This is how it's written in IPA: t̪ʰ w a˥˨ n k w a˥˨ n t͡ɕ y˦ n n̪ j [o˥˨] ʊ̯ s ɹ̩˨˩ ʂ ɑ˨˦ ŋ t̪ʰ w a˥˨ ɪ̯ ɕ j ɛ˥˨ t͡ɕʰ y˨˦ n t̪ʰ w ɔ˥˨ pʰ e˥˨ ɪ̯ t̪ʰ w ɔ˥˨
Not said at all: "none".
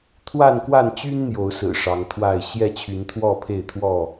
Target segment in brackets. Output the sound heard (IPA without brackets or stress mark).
o˨˦